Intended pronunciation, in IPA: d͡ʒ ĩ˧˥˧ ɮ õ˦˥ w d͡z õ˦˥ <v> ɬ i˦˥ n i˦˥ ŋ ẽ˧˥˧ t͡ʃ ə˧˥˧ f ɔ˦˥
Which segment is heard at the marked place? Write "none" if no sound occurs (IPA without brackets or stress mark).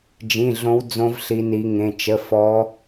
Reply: v